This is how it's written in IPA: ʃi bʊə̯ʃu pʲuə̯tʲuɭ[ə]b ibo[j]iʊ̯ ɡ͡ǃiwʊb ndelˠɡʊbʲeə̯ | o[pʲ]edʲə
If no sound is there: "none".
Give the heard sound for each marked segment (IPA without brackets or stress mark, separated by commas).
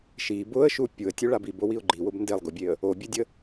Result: a, w, bʲ